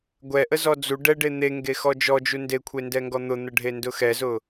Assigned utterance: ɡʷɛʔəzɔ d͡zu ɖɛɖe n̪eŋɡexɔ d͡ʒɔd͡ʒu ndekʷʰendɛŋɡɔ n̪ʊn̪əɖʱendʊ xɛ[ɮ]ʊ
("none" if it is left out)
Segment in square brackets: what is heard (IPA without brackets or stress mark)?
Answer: z